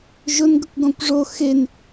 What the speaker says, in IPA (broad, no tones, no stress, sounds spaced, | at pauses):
ʒ ʊ n ɡ ə kʷ ɡ ɔ̃ kʷ ʐ o x e n